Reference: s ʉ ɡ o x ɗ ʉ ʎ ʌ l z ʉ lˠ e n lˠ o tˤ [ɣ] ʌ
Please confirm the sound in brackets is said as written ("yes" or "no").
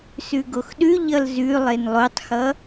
no